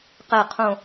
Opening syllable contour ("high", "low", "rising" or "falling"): low